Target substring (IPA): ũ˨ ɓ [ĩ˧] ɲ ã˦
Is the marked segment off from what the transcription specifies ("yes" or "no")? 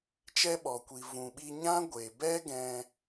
yes